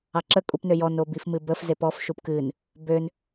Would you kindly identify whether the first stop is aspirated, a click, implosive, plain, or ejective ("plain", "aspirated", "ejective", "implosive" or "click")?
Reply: click